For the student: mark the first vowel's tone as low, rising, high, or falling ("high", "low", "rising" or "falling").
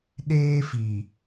high